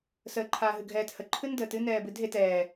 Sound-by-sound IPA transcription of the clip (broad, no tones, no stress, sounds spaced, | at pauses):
s əː ǃʰ aː ɦ ɨ ɡʱ ɛː t h ə ǃʰ ɨ n d əː t ɨ n ɛː b ɨ dʱ e t ɛː